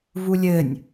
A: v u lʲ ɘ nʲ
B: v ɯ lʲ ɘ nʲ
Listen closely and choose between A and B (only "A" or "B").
A